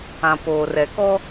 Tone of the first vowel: low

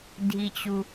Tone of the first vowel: low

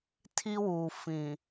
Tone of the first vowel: high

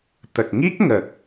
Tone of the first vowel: low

